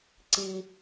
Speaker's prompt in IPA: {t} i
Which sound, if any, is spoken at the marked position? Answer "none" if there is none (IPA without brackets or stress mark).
ǀ